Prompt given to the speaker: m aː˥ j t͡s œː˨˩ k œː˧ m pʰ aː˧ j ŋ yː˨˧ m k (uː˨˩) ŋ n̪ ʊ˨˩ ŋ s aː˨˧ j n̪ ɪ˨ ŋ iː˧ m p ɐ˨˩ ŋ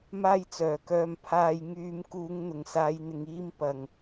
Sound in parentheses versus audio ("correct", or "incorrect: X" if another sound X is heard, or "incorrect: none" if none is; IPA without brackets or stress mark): incorrect: uː˨˧